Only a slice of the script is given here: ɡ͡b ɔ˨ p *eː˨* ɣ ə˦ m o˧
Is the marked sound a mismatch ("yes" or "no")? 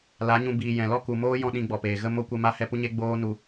no